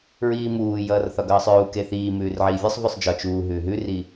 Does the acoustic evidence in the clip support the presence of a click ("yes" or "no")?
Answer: no